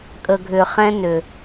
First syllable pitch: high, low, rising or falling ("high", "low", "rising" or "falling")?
low